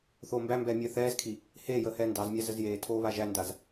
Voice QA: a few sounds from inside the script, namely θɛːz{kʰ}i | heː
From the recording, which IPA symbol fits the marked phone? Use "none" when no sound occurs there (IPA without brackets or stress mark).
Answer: kʰ